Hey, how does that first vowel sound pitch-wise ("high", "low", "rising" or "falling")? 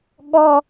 high